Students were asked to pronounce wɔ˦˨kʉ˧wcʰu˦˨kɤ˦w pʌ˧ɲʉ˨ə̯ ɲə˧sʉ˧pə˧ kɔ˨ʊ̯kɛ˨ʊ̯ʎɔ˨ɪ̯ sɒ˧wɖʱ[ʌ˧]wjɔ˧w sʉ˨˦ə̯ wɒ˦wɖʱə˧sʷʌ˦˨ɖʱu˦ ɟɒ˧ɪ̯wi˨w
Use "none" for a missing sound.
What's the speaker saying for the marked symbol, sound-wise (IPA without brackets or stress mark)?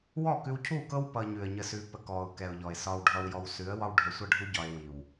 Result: ʌ˧